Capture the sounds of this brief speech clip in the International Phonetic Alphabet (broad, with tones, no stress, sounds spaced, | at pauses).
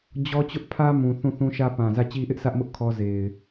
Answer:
d͡ʑ ɔ˦ t͡ɕ ʊ˦ ʔ pʰ ä˦ m ũ˨ θ ũ˦˨ θ ũ˦ ʃ ä˦ p ã˨ z ä˦˨ t͡ɕ i˦ ʔ ɪ˦ ʔ sʰ ä˦ ʔ m ʊ˦ ʔ kʰ ɔ˦ z e˨ ɪ̯